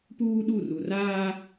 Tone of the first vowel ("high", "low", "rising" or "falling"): high